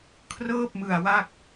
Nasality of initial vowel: oral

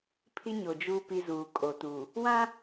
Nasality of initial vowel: oral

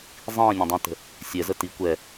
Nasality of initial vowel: nasal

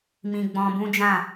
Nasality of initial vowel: nasal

